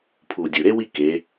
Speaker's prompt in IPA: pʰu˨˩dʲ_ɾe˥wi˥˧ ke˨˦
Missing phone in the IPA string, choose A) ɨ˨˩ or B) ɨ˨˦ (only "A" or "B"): A